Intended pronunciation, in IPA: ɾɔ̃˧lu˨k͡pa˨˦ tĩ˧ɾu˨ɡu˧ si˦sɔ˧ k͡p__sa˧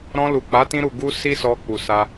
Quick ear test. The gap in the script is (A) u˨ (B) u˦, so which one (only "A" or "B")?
A